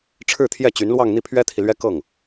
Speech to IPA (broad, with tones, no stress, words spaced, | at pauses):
ʈ͡ʂʰɻ̩˥˧t̪ʰjɛ˥˩t͡ɕy˧˥nlwɑ˥˧ŋ n̪i˥˩pʰɥɛ˥t̪ʰi˨lɥɛ˥ kɤ˥˩ŋ